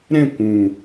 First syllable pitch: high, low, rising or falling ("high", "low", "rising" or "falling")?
falling